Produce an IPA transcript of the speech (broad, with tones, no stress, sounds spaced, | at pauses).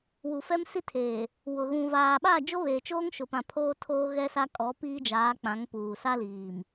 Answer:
w u˨ f ɛ˦ m s i˦ tʰ eː˨ | w ʊ˨ ɣ ũ˨ v aː˨ ɓ a˦˨ d͡ʒ o˦ β eː˨ t͡ʃ oː˦ ŋ ʃ ʊ˨ p ã˨ pʰ oː˦ tʰ oː˦ ɣ ɛ˦ s a˦ kʼ ɔ˨˦ p iː˦ d͡ʒ aː˨˦ k͡p ã˨˦ ŋ p uː˨ s a˦ l iː˨ m